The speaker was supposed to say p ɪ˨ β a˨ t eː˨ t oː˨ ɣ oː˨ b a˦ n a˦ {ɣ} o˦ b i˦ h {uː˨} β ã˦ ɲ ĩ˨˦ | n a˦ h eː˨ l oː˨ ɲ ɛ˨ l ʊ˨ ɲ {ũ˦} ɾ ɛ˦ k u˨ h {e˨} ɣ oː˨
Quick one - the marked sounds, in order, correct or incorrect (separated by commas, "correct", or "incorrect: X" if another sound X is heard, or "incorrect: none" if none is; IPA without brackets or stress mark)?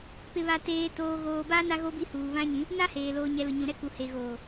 correct, correct, incorrect: ũ˨, correct